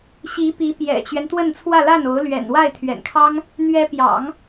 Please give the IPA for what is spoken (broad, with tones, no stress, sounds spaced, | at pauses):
ɕ i˧˥ p i˧˥ p j ɛ̰˨˩ t͡ɕ ɥ ɛ˦ n t̪ w ə˥˧ n t͡sʰ w ä˥˧ l a˥˩ n o˧˥ ʊ̯ l ɥ ɛ̰˨˩ n w a˥˩ ɪ̯ t̪ʰ ɥ ɛ̰˨˩ n kʰ ɑ˥ ŋ | n̪ ɥ ɛ˧˥ p j ɑ̰˨˩˦ ŋ